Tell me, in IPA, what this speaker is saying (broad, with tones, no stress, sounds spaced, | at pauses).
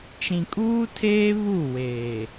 t͡ʃ ĩ˨ kʼ uː˦ tʰ eː˦ β u˦˨ w eː˨